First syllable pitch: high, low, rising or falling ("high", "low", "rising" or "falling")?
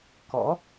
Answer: rising